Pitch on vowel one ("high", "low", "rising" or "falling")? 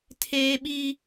high